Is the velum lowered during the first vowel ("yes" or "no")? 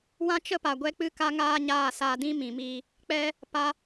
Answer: yes